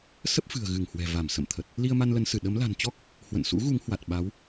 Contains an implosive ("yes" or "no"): yes